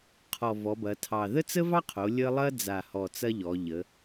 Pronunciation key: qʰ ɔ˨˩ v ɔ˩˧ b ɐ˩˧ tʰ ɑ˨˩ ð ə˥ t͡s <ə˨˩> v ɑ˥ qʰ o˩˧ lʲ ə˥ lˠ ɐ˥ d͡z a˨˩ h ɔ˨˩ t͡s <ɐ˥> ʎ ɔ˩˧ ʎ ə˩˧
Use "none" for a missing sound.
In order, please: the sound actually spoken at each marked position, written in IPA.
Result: ə˥, ɐ˥

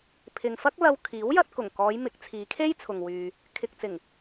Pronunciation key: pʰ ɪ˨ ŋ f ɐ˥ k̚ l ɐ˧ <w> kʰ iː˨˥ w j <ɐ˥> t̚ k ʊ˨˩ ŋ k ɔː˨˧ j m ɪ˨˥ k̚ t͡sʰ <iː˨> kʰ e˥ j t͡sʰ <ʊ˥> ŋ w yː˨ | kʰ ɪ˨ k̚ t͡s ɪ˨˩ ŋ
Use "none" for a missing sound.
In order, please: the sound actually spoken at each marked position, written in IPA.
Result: w, ɐ˧, iː˨˧, ʊ˨

